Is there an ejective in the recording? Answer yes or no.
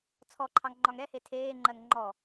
no